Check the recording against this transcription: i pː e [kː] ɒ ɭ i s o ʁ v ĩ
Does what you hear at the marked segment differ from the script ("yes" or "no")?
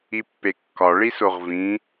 no